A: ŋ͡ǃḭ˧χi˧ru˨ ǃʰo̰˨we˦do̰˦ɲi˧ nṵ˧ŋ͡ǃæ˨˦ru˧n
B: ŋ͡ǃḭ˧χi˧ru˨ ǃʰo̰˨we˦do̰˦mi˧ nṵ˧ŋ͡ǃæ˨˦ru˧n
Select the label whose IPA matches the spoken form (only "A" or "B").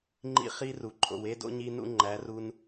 A